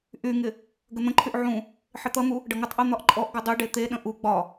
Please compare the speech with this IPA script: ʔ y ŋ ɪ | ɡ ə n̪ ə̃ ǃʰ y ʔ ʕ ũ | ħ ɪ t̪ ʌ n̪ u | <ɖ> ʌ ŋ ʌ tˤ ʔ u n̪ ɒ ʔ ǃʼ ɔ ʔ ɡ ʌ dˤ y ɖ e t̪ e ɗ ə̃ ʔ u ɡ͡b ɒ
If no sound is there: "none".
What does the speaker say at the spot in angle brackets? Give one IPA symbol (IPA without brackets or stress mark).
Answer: ɖ